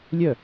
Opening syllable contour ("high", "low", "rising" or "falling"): falling